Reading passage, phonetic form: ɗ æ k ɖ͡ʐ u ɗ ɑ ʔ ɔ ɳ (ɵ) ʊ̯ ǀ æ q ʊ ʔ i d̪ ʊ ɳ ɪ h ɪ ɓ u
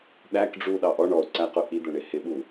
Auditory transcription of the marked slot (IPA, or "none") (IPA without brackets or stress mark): ɔ